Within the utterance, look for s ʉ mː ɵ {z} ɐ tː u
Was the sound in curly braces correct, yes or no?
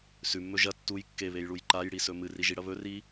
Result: no